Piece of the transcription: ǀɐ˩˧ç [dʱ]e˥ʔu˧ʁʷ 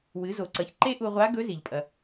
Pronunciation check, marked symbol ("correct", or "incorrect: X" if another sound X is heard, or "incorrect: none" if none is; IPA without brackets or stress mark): incorrect: ǃ